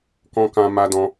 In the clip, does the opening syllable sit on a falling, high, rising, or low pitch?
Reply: high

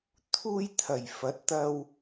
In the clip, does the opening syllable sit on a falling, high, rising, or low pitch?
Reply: high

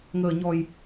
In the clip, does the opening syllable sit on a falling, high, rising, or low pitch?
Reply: low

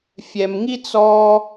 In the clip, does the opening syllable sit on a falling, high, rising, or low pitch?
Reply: low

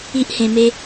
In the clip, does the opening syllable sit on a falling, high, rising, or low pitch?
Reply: high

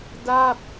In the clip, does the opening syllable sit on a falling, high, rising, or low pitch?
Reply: falling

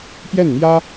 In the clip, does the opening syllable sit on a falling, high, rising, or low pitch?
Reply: falling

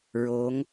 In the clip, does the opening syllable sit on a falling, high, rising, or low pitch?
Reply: rising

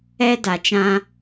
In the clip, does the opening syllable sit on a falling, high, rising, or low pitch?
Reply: high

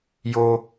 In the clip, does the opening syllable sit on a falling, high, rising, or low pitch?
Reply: low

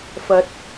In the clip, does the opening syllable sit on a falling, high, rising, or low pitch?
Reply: rising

